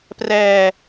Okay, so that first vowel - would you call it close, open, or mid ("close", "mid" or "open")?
mid